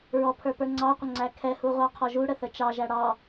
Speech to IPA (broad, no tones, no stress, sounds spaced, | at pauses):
ɹ ɔ pʰ ə˞ p ə˞ ŋ͡ǀ ɑ qʷ ə ŋ͡ǀ æ kʰ ɛ h u ʁʷ ɑ qʰ ɔ ʒ u ɽ ə θ ə t͡ʃ ɑ ʒ æ ɽ ɑ